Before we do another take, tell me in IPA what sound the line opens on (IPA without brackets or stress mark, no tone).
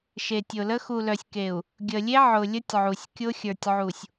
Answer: ʃ